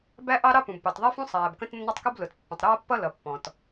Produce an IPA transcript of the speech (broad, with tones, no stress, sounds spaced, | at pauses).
b æ˥ ʔ ɑ˥ ɾ ɑ˥ p ũ˩ b p ɑ˩ t ðˤ ɛ˥ f ũ˥ sˤ æː˩ b k ə̃˥ t nː ʌ˥ tˤ k u˥ b l ʊ˩ t pː ə̃˩ tˤ ɾ ʌː˥ pː ʌ˥ l ʌ˩ pː ɔ̃˩ t